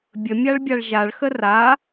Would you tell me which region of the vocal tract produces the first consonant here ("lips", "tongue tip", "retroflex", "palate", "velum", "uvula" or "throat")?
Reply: lips